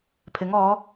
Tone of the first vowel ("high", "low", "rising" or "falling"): rising